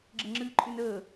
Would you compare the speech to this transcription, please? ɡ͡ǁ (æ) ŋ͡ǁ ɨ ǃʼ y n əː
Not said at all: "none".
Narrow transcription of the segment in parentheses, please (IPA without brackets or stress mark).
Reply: ə